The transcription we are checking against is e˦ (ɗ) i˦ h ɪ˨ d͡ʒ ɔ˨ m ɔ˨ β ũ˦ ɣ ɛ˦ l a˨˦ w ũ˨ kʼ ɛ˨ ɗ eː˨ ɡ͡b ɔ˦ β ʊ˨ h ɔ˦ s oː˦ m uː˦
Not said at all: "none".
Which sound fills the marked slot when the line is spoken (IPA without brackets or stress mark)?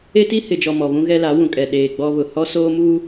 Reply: t